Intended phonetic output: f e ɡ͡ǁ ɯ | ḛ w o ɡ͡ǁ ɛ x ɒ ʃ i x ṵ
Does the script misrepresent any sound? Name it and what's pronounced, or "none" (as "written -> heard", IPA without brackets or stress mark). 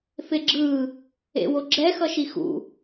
ɒ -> ʌ